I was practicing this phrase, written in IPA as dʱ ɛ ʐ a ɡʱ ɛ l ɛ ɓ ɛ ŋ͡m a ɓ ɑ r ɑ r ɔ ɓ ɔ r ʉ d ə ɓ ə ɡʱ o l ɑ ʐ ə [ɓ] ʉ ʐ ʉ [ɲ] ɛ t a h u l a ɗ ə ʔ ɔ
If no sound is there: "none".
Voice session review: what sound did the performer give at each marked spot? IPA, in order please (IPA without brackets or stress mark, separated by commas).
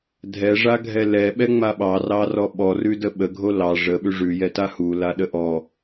ɓ, j